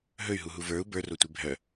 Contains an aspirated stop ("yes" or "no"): no